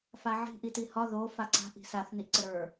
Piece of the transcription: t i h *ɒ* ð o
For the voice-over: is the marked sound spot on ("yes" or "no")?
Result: yes